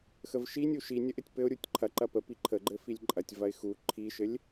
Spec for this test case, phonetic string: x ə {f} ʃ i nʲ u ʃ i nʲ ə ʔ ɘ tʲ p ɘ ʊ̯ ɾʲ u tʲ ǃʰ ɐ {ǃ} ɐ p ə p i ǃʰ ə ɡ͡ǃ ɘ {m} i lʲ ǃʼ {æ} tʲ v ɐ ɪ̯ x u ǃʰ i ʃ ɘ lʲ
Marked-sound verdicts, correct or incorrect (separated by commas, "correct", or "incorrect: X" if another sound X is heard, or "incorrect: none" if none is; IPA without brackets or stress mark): incorrect: v, correct, incorrect: f, incorrect: ɐ